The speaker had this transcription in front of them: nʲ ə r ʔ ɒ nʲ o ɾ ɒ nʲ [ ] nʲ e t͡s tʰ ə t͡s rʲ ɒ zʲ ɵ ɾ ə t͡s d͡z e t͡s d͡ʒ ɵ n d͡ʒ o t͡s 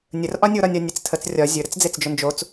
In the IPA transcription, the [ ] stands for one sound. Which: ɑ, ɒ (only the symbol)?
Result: ɒ